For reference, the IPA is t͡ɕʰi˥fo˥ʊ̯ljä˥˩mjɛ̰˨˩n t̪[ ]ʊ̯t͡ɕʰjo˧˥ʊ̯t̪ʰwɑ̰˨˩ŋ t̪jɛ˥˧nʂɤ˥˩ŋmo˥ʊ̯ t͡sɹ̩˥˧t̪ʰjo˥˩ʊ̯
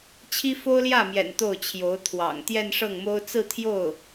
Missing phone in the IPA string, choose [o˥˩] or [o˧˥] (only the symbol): o˥˩